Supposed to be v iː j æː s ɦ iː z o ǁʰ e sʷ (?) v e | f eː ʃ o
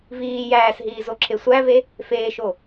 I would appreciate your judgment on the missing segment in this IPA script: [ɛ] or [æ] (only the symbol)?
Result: æ